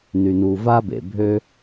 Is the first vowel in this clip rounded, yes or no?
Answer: yes